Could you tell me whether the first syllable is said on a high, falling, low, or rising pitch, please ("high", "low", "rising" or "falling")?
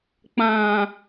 low